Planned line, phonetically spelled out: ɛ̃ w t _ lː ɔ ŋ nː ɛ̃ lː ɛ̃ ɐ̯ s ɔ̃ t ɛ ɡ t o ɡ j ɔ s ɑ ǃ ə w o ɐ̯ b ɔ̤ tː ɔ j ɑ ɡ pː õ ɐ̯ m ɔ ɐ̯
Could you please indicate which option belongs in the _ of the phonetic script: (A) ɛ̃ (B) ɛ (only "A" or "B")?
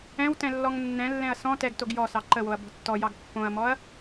A